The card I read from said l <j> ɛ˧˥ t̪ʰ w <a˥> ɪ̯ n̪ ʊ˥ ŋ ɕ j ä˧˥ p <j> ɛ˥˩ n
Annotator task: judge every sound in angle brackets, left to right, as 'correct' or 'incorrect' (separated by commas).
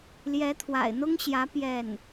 correct, incorrect, correct